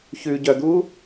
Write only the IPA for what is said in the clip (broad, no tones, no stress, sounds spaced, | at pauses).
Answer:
ç ʉ ɟ œ d̪ u